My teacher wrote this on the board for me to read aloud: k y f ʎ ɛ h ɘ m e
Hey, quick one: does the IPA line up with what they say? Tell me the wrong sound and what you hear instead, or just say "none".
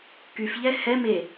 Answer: ɘ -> ɛ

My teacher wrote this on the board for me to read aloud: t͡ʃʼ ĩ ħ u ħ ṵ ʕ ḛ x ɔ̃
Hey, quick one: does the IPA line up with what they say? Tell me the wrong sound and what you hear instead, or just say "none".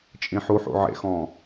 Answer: none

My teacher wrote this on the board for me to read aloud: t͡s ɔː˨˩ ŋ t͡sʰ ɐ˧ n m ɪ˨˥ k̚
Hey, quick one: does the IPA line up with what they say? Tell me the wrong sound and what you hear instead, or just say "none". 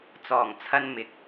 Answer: none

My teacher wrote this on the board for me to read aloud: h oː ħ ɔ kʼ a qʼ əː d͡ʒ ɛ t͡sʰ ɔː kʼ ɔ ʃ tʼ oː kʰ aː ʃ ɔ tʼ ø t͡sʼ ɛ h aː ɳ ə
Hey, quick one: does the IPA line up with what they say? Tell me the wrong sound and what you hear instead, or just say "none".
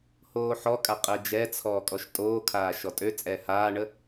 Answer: none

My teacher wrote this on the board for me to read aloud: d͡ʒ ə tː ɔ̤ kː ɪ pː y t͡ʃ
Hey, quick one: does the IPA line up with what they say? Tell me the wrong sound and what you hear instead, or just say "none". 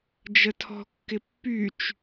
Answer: tː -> tʰ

